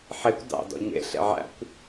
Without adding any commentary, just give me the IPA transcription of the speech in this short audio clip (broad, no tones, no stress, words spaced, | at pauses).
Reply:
ħekʷ dɑ̰ dɔ̰ɲḛ ɬḛʕæ̰kʷ